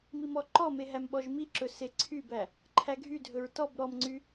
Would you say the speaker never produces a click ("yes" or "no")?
no